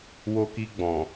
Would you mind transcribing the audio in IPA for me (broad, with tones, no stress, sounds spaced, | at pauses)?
w o˧ k i˧ ɡ͡b ɔ̃˨